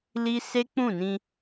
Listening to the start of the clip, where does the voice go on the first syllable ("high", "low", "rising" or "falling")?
high